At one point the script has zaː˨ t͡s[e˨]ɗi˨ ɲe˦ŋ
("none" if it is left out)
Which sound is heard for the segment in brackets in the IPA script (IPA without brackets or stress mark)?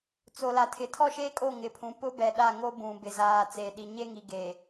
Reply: e˨